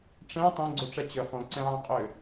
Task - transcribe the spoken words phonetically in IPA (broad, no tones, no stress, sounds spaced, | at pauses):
ʈ͡ʂ ɛ̃ tˤ õ ɡ͡ǀ o ʈ͡ʂ ɛ t͡ɕ ʏ χ õ ǀ ɛ̃ ʕ ə̃ qʼ ʏ